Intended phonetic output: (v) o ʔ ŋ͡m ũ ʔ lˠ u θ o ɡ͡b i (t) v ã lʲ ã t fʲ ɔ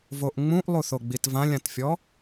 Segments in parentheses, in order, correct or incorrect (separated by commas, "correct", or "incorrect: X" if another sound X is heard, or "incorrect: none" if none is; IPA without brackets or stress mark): correct, correct